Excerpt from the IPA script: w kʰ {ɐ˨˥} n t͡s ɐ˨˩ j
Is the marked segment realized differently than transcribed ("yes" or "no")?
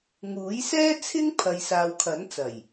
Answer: no